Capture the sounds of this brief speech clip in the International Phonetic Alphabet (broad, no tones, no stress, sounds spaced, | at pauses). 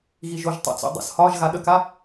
ɣ i ʒ o ʒ tˤ a̰ t͡s o̰ dˤ ə̰ s h ɒ ʒ ɣ a ɗ ə k a